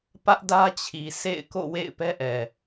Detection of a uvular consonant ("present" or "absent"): absent